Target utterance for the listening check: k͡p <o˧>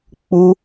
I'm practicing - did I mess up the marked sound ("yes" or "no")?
yes